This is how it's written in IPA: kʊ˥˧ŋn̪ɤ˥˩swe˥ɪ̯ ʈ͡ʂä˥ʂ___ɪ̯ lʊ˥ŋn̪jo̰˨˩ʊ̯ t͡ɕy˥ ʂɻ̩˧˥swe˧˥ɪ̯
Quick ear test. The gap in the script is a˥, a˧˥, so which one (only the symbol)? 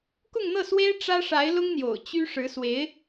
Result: a˧˥